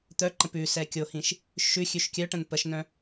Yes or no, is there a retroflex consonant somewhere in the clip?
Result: yes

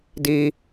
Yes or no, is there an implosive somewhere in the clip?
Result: no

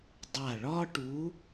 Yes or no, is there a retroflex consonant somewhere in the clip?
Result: yes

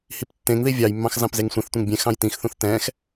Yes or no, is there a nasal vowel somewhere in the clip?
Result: yes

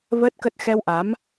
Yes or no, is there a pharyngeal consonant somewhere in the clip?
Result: no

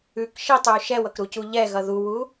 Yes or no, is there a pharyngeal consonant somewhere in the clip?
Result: no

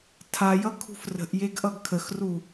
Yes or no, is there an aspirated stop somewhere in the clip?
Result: yes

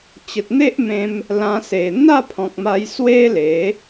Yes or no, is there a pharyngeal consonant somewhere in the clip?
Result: no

